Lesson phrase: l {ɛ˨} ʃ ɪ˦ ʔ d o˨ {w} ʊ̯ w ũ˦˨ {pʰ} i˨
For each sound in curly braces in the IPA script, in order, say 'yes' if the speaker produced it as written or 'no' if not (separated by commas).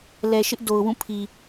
yes, no, yes